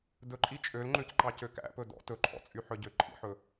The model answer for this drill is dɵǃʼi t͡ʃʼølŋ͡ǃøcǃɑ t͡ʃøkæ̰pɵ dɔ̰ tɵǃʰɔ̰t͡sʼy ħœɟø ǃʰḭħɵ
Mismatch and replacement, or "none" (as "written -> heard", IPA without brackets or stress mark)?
t͡ʃ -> c